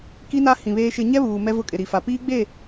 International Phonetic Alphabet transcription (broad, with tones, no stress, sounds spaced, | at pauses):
k i˦ n a˦ h ĩ˨ β eː˦ ʃ ɪ˦ ɲ ɛ˦ β uː˨ m ɛ˦ v ʊ˦ kʼ ɪ˨ ɾ i˨ f a˨ p iː˦ ɡ͡b e˦˨